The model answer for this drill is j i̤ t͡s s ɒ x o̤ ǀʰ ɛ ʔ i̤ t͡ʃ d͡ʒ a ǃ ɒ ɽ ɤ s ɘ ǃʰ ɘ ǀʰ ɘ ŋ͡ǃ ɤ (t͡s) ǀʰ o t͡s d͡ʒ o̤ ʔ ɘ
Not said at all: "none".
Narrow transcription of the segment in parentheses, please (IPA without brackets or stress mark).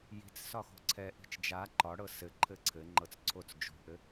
t͡s